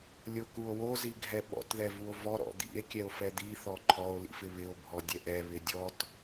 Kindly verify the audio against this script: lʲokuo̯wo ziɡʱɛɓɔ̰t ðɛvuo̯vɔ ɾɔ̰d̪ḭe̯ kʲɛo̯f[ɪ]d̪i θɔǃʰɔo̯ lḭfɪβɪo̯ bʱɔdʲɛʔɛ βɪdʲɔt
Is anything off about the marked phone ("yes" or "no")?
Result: yes